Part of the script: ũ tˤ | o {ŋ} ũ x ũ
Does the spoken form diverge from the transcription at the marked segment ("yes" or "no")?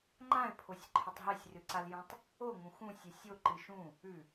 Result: no